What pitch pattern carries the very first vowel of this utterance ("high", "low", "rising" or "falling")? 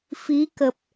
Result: rising